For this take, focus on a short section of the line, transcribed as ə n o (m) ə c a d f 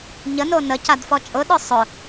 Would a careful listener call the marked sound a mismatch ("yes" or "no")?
yes